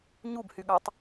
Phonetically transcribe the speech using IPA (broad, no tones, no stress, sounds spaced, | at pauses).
ɲ u b h y ɠ ɑ tˤ